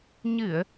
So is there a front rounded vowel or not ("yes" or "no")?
no